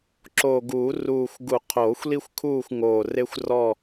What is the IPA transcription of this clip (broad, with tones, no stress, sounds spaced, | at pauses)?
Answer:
ǁ o˨˩ ɡ uː˨˩˦ r uː˨˩ xʷ ɡ u˨˩˦ qʰ oː˨˩˦ xʷ l i˦ xʷ kʰ uː˦˨ xʷ ŋ oː˨˩ r e˦ xʷ r ɔ˦˨